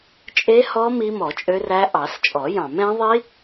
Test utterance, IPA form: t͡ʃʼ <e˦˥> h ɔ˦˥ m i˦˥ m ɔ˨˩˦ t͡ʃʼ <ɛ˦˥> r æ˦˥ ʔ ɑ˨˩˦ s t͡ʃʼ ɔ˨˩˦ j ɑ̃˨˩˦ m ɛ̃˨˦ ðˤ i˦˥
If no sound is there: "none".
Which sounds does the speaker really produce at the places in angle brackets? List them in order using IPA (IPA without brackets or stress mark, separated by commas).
e˦˥, ø˦˥